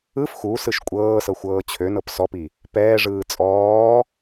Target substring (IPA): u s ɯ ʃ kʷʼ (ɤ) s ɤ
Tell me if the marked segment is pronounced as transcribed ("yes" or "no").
no